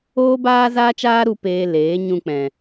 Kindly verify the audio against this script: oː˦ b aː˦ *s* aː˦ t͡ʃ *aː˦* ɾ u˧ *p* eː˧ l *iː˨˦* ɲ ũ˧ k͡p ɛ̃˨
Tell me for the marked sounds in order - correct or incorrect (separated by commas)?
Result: incorrect, correct, correct, incorrect